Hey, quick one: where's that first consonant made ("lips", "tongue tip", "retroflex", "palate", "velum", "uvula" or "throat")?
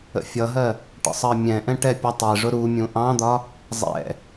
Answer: lips